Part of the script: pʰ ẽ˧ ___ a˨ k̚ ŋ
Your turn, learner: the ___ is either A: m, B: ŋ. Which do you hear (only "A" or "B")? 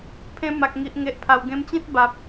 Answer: A